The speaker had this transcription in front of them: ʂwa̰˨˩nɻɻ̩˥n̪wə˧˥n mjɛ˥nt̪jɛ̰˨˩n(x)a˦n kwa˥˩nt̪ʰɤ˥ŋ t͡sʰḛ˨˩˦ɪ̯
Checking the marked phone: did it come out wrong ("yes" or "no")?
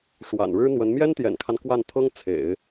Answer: yes